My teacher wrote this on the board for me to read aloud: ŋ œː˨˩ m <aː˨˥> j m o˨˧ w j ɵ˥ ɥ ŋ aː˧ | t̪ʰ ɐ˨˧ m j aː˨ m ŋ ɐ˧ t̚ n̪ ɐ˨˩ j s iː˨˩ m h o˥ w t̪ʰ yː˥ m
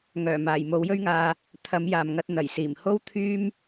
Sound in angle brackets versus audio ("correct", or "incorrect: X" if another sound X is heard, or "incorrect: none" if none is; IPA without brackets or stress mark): incorrect: aː˨˩